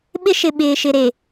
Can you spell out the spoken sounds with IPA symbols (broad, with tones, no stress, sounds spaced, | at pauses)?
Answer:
ɓ ɪ˦ ʃ ɪ˨ ɓ ɪː˨ ʃ ɪ˨ ɾ e˨